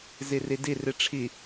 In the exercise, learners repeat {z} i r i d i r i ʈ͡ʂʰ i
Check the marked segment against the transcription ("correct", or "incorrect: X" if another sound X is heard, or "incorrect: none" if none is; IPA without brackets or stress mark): correct